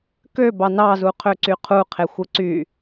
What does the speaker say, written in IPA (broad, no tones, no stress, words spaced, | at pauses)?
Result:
kø bɑnɑzu qʰøǀyqʰuqʰe xʷɯǀy